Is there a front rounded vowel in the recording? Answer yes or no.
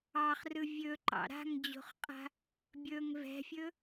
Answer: no